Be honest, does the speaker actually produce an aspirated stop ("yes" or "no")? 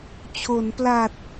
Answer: yes